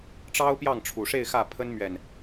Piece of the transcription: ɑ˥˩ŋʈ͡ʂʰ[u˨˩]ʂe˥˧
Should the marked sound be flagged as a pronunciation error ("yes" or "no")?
no